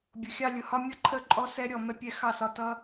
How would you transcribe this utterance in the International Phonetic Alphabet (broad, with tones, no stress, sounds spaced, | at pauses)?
bʲ ʊ˨ xʲ ɑ˧ lʲ ʊ˨ h ɒ˧ mʲ ʌ˦ ǃʰ ə˦˨ ǃʼ ɔ˧ s ɛ˦ ɾʲ ɔ˦˨ m ɛ˧ pʲ ɛ˧ x ɑ˦˨ s ɒ˧ t ʌ˦